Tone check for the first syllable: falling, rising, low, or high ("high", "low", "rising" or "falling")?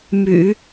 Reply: low